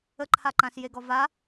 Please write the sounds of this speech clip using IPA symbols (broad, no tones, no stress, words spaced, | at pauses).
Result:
əǃʰaǃãs jeɡɔva